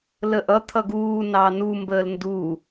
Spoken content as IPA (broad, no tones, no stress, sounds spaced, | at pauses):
l ə ʔ ʌ t̪ʰ ʌ ɡ uː n ɑ n u m b əː l n d u